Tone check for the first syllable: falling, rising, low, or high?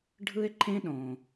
high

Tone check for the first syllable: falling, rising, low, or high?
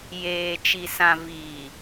low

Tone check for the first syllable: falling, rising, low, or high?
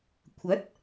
rising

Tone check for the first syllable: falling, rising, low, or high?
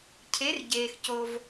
rising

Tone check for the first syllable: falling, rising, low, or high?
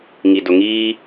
low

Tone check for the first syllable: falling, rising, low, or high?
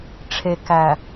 low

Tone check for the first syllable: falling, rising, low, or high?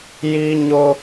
high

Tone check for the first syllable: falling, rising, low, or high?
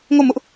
falling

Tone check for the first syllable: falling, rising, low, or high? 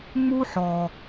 high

